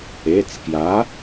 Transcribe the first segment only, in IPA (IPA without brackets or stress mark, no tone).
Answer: e